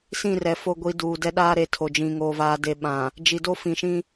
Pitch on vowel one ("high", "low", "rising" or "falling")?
falling